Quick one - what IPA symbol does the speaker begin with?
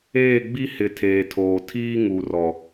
eː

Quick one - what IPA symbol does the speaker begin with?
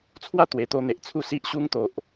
t͡sʰ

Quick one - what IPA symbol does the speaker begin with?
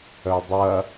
œ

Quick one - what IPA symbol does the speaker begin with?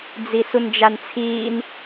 d͡z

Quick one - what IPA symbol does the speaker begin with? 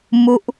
m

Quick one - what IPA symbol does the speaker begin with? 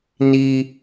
n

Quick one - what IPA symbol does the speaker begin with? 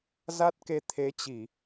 z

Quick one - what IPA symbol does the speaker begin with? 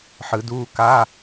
ħ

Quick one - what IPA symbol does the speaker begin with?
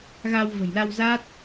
ɣ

